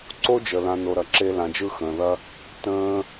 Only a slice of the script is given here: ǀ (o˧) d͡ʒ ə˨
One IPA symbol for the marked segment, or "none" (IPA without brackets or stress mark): o˦